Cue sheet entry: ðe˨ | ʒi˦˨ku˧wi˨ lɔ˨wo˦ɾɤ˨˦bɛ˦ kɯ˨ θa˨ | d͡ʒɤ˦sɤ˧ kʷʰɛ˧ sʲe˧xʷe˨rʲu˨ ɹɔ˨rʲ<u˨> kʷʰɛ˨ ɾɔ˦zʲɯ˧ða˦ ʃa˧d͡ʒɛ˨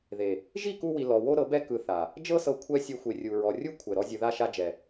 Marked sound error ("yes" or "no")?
yes